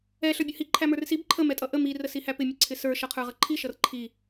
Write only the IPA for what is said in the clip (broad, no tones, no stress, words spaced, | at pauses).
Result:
ɛ ɬə˞bʲʌhi ǃʰæmə˞rsib ǃʰə mɛtʼʌʔə mi rəsihæpɪ mʲʊǀʰɪsə˞ ʃʌqʰə˞ʁʌǃʰi ʃʌrǃʰi